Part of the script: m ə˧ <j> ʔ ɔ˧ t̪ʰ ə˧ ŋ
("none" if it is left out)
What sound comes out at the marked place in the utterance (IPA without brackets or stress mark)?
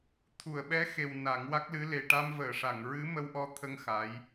w